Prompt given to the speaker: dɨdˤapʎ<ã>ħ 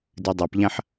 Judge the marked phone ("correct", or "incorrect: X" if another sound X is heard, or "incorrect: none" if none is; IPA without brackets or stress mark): correct